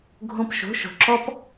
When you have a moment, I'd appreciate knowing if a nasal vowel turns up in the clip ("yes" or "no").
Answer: yes